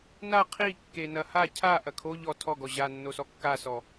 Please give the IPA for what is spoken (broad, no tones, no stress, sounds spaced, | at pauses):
n a qʰ i kː e n ɐ h a cʰ a ʔ ɐ kʰ o ʎ ɔ tʰ ɔ ɡ ɔ ʑ a nː o s ɔ kː a s ɔ